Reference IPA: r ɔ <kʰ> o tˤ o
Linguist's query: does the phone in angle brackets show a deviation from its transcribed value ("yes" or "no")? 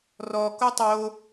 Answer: yes